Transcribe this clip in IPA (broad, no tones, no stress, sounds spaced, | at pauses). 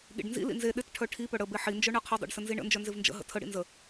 ɠ ḭ ɖ n z ḭ l ḭ n z e ɗ ɪ t ʈʰ œ ʈʰ i p œ ɽ ə b e ħ i n d͡ʒ œ ɳ ɜ qʰ ɪ dˤ ḭ ɖ s ə n z i ɳ ə̰ n d͡ʒ œ n z ɪ v n d͡ʒ ə̰ ɦ ə̰ tʰ ə ɽ ḭ n z ə